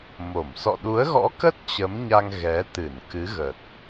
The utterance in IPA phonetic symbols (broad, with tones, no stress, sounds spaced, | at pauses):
m o˧˩ m s ɔ̰˧˨ ɗ u˨˦ ə̯ ɣ ɔ̰˧˥ k ə˦˥ t̚ t͡ɕ ə˨˦ m ɲ a˧ ŋ ɣ ɛ˨˦ t̪ ɨ˧˩ n k ɨ˨˦ ɣ ə˨˩ t̚